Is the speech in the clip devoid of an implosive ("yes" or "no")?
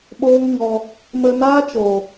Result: no